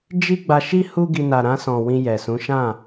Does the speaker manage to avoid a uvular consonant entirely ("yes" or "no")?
yes